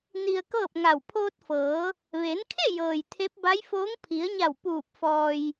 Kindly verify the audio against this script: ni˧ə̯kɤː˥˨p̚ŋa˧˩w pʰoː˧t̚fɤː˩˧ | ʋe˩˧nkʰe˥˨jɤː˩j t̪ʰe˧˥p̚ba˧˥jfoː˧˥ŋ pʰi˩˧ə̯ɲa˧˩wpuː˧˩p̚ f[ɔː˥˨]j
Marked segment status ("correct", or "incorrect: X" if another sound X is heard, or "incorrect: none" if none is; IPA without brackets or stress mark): incorrect: ɔː˧